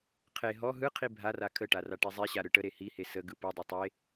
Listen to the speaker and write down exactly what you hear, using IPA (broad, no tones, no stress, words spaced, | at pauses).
qʰe ɦɔ ɦɯqʰi bʱara kʰəʈa raʈezˤeɕa ɾɯʈəɾe hihe səɡɯ pɯdˤe tˤe